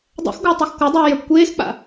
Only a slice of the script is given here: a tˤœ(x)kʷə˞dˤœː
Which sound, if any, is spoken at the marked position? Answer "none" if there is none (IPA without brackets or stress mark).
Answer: x